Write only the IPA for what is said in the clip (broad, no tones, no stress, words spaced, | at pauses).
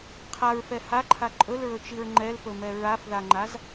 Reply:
qʰaɹfɛ haǃʰa ǃʼɵlɹɵt͡ʃiɹ ŋ͡ǃɛlpɵmɛ ɹafðaŋ͡ǃaz